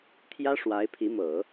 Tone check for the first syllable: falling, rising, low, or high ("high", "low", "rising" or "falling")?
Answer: high